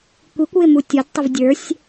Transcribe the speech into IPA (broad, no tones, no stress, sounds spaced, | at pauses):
kʷ i kʷ w ɪ m u tʲ ɔ d tˤ ɪ v dʲ ə˞ sʲ